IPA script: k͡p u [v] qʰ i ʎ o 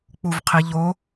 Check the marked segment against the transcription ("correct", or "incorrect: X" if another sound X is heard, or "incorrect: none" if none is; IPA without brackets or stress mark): correct